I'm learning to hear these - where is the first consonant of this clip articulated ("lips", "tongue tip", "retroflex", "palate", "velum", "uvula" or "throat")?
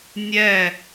tongue tip